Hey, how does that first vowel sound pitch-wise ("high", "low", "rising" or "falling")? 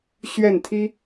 falling